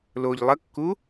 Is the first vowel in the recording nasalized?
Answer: no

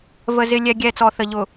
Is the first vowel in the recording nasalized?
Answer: no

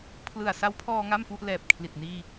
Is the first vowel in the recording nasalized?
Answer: no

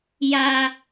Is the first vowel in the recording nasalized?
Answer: no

